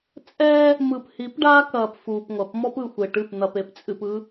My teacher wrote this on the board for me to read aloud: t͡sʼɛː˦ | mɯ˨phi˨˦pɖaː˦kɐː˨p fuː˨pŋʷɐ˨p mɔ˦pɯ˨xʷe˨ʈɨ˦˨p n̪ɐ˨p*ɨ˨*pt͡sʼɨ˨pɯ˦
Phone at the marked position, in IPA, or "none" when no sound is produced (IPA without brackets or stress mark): e˨